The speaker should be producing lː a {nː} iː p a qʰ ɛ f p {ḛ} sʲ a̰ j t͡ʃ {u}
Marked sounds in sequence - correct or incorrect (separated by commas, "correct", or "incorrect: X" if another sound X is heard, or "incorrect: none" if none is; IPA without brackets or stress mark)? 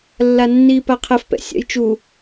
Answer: correct, incorrect: ɛ̰, correct